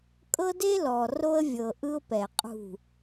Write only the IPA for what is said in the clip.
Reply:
kʼ ɤ˦ d e˦ l ɔ˨ r o˦ ə̯ vʲ ɤ˨ ʔ ɯ˦ ʊ̯ p ɛ˨ qʼ ṳ˦˨

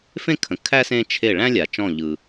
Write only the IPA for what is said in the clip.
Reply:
f ẽ˦ kʰ ə̃˩ kʰ æ˦ s ẽ˦ t͡ʃʰ e˧˩ ɭ æ̃˦ lʲ a˩ t͡ʃ ɔ̃˧˩ ʎ ɯ˩

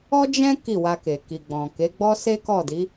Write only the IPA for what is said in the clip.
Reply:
ɔ˦ d͡ʒ ɛ̃˦ k i˦˨ w a˧ k e˨ k i˨ ɡ͡b ɔ̃˨ k e˨˦ ɡ͡b ɔ˦ s e˦ k ɔ˦˨ d i˨˦

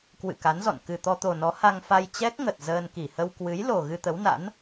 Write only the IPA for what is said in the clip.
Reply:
k w ɨ̰˧˨ k a˨˦ n z ɔ̰˧˨ n k ɨ˨˩ t̪ ɔ˧ t̪ o˨˩ n ɔ˨˦ h a˧ ŋ f a˧ j t͡ɕ ɛ˦˥ k̚ ŋ ə˨˩ t̚ z əː˧ n k i˧˩ h ə˧ w k w ɨ˨˦ j l o˨˩ ɣ ɨ˧ t̪ ə˨˦ w n a̰˧˥ n

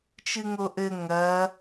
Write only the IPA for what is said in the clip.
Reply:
t͡ʃ ɨ ŋ o ʔ ɘ ŋ ɐ

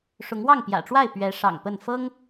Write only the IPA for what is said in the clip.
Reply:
ʂ ʊ˨˦ ŋ w ɑ˥˨ ŋ p j ä̰˨˩ ʈ͡ʂ w a˥˨ ɪ̯ p ɥ ɛ˨˦ ʂ ɑ̰˨˩ ŋ p ə˥˨ n f ɤ˦ ŋ

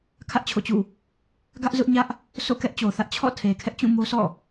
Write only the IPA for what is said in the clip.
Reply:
kʰ ä˦ ʔ t͡ɕʰ o̰˦˨ t͡ɕ ṵ˦˨ | ɡ ä˦ ʔ z ʊ˦ ʔ ɲ ä˦ ʔ | sʰ o̰˦˨ k ɛ˦ ʔ t͡ɕ o˨ θ ä˦ ʔ t͡ɕʰ ɔ̰˦˨ tʰ e˨ kʰ ɛ˦ ʔ t͡ɕ ũ˦˨ m o˦ sʰ ɔ̰˦˨

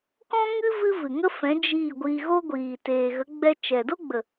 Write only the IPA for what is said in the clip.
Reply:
k ɔ̃˦ ŋ ɨ˦ v ɨ˦ v ɨ˨ ŋ ə˦ f ɛ̃˨˦ d͡ʒ iː˦˨ ɡʷ iː˧ ɣ o˦ ɡʷ iː˨ t eː˨ ɣ ə˨˦ ɡ͡b ɛ˧ t͡ʃ ɛ˨ d o˦ ɡ͡b ə˨

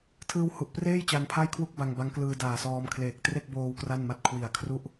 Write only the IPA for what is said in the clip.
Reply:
tʰ ɯː˧ w h u˨˩ ʔ p r eː˥˩ j t͡ɕ a˧ n pʰ a˥˩ j kʰ w u˥˩ k̚ b a˧ ŋ b a˦˥ ŋ k l ɯː˧ d aː˨˩ s ɔː˧ m kʰ l eː˨˩ k̚ t r e˥˩ k̚ b oː˧ w k r a˥˩ n m a˥˩ t̚ kʰ w i˨˩ a̯ kʰ r u˥˩ ʔ

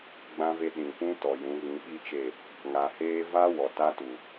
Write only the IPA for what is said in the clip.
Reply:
ɡ͡b ã˦ v e˦ ɗ ĩ˨ p ũ˦ t ɔ˨ j ũ˨˦ ɣ ĩ˨˦ ɓ i˦ t͡ʃ e˦˨ | ŋ a˨ h eː˦ v a˦ w ɔ˨ t a˦ t u˨

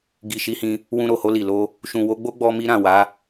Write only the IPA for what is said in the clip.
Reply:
ɡ i˨ ʃ i˨˦ h ĩ˧ | w ũ˧ ɾ o˨ h o˧ l i˨ l o˧ | ʃ ũ˨ w o˨˦ ɡ͡b o˦ ɡ͡b ɔ˦ m i˦ ɾ ã˦˨ w a˨˦

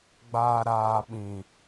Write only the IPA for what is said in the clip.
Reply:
ɡ͡b aː˨ ɾ aː˨ ɓ ĩ˨

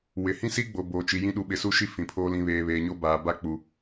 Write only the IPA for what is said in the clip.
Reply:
w ɪ˨ h ĩ˦ s i˦ ɡ͡b o˨ b o˨ t͡ʃ i˨ j ĩ˦ ɗ u˨ ɓ ɪ˨ s u˦ ʃ i˦ f ĩ˨ pʰ oː˦ l ĩ˨ β eː˨ β eː˨ ɲ o˦ b aː˨ b a˦ k͡p u˨

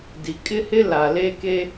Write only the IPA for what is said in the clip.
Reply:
d i˨ kʼ ɪ˦ h ɪ˦ l a˨ l e˦ k e˦

